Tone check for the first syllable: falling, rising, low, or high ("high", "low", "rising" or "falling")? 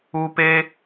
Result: high